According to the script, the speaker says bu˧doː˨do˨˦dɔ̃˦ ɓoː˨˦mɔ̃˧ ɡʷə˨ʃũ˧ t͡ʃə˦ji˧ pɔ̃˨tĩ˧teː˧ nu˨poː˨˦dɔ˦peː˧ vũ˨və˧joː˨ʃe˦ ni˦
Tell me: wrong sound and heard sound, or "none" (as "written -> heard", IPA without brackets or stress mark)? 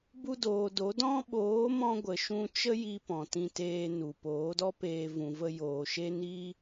none